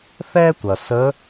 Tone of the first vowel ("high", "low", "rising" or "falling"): high